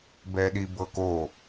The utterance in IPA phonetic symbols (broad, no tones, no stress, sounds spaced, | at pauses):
b ɛ ɗ i b ɤ k o